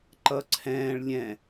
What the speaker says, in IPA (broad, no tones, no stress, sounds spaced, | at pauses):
ǃ ʌ ǀʰ ɛ̃ː ɭ lʲ ɛ̃